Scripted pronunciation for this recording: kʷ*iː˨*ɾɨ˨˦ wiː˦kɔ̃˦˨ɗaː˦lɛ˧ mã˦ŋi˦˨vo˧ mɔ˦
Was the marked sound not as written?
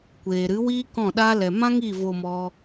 yes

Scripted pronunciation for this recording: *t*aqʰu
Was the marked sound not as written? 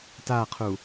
no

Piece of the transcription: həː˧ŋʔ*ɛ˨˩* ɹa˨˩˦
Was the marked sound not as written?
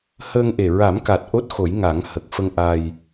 yes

